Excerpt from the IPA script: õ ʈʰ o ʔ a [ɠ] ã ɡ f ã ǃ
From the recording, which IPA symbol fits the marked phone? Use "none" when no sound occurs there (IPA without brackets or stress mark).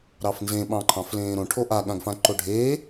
ɠ